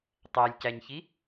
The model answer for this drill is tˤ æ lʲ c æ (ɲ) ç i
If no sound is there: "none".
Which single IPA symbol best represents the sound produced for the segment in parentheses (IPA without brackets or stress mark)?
ɲ